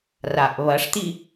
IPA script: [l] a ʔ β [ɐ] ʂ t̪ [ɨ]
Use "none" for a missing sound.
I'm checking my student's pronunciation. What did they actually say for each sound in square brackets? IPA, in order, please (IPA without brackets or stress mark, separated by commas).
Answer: r, ɐ, i